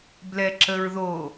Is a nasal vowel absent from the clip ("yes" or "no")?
yes